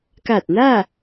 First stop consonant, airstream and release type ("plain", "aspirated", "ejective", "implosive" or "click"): plain